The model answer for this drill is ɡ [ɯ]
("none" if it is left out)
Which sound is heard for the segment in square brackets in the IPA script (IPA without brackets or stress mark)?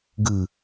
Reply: ɯ